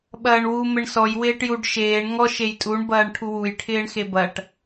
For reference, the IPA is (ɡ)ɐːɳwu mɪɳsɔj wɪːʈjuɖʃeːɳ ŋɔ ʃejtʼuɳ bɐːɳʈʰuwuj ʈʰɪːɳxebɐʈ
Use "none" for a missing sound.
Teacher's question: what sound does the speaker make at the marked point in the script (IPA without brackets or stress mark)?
ɓ